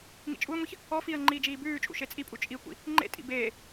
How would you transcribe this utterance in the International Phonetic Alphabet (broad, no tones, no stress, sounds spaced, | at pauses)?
ŋ ḭ t͡ʃʼ u ɪ̯ ŋʷ e ç | ɔ f i ə̯ ŋ͡ǃ iː d͡ʒ iː b ʉː t͡ʃʼ ṵ ʃ e t͡sʼ i pʼ u t͡ʃʼ i kʷ ḭ | ŋ͡ǃ ḛ tʼ ḭ b eː